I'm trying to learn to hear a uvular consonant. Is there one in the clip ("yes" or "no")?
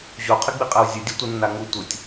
yes